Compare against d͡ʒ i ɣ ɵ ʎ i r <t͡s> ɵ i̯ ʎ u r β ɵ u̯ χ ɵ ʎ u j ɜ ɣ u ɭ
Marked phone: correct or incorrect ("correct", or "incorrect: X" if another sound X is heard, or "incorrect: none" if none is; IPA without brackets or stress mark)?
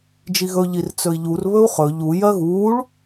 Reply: correct